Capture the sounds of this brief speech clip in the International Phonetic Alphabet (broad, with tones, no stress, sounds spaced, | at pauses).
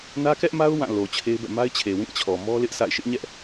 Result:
n ä˦ k ɛ˦ ʔ m a˦ ʊ̯ w ã˦˨ l o˨ t͡ɕʰ e˦ ɪ̯ b ɛ̰˦˨ m a˦ ɪ̯ t͡ɕʰ e˨ w ĩ˦˨ t͡ɕʰ ɔ˨ m ɔ˦ l ɪ˦ ʔ sʰ a̰˦˨ ɪ̯ ʃ ɪ˦ ʔ ɲ ɛ˦ ʔ